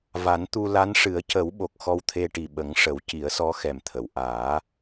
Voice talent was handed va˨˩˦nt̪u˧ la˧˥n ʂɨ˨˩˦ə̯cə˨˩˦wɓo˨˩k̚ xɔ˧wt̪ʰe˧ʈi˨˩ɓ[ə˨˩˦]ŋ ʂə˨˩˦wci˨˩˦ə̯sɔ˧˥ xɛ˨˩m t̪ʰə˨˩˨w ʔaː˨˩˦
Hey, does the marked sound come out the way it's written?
yes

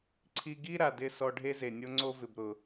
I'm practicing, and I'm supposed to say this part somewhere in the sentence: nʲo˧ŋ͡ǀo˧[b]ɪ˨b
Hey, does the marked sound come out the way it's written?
no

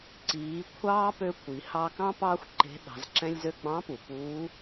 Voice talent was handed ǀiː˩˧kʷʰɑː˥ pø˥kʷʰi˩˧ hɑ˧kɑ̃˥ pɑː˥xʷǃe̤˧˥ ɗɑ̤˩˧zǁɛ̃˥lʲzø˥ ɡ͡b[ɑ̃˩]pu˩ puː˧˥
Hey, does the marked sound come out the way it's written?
no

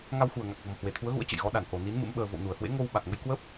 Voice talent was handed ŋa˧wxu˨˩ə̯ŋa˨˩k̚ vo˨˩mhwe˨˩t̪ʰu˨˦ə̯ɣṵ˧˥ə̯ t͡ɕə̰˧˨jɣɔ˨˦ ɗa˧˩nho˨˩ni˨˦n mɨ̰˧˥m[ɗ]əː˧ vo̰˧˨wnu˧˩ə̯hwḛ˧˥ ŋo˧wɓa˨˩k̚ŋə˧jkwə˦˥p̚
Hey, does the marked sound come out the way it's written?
no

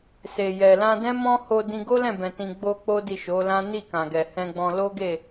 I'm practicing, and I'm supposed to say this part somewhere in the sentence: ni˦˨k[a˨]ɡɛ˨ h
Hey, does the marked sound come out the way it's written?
no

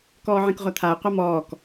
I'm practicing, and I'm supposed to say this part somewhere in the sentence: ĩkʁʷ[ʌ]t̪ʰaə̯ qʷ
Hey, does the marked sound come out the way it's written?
no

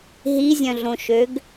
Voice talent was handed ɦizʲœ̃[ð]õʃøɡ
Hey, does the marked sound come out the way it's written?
no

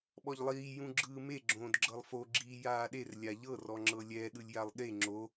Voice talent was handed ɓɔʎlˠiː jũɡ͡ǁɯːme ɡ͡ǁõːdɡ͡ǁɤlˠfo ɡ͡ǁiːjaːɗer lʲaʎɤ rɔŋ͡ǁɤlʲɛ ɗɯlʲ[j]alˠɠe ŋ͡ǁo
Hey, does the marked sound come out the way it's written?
yes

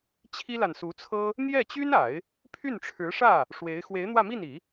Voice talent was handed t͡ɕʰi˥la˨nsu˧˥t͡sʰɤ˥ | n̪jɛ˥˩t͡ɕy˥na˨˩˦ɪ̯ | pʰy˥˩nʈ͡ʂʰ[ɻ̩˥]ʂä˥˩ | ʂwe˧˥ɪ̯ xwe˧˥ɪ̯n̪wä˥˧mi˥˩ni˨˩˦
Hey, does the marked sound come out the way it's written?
no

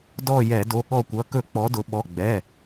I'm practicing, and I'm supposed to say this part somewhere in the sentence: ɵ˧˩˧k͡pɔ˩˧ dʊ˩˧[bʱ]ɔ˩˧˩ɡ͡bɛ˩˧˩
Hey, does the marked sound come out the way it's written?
no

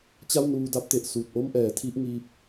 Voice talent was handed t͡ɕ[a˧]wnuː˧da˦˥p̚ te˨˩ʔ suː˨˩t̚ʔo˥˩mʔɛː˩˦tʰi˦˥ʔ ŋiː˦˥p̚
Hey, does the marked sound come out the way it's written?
no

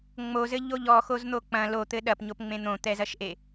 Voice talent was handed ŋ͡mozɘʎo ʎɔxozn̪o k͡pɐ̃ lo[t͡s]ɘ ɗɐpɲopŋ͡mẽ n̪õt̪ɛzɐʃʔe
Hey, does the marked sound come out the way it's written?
no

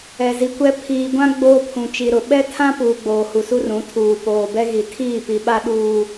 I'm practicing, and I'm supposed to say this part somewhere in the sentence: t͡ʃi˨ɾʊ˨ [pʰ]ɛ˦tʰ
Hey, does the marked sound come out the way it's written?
no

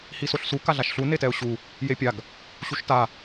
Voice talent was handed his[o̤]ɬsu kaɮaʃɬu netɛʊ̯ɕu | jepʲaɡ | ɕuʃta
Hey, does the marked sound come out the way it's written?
no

